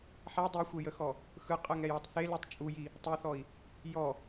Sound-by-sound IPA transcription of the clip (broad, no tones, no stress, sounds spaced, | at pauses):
ħ æ dˤ e xʷ e j ə x ɔ | x ɯ qʼ ə ŋ ɛ j ɔ tˤ θ e l u tˤ t͡ʃʼ u j i | tˤ ɯ θ ɔ i̯ | j ɔ